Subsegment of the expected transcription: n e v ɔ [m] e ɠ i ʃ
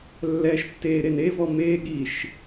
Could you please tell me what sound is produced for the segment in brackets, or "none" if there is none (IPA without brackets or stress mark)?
m